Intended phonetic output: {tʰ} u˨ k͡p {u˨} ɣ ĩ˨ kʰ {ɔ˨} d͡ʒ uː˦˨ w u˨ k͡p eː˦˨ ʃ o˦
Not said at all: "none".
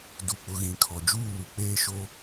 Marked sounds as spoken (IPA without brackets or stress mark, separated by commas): d, ʊ˨, ɔ˨